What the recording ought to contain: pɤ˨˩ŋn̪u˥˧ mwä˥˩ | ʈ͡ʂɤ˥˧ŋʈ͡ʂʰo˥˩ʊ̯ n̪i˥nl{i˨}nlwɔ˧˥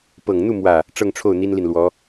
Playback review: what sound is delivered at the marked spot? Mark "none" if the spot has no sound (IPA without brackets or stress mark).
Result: i˨